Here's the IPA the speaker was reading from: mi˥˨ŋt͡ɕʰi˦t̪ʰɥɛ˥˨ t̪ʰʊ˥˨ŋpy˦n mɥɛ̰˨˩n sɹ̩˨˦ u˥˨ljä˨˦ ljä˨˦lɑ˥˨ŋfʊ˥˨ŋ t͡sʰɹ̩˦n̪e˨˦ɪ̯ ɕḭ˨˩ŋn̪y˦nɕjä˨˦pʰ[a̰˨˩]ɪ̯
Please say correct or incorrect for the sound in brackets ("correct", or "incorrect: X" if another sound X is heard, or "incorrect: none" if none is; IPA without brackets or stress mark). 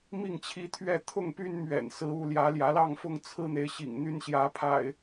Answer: correct